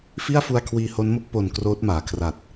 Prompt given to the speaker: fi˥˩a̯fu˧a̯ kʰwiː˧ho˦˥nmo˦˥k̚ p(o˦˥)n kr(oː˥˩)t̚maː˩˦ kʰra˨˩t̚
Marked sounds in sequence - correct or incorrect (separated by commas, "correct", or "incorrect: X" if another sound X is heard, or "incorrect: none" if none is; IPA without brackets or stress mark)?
incorrect: o˨˩, incorrect: oː˦˥